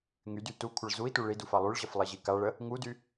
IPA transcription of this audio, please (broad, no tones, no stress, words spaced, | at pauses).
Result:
ŋydy tukʷʰəɭ zui̯tu ɭiduf alˠyɭʑəf lˠiʑikaɭə | ŋudy